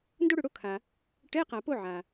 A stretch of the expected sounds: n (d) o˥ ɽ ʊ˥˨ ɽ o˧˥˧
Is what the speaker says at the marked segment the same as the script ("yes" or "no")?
yes